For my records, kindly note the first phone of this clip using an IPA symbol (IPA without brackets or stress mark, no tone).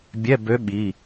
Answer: bʲ